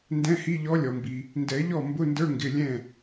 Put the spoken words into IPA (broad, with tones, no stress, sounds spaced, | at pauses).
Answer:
n d ɛ̃˧˥˧ h i˧˥˧ ʎ ɔ˧˥ lʲ ɔ˩ m b i˩ | n d ɛ˨˩˦ ʎ ɔ˥˩ m b ʊ˧˥˧ n d ə˞˧˥˧ ŋ ɡ ɪ˩˧˩ lʲ ɛ̃˥˩